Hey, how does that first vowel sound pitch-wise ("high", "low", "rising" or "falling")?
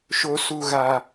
low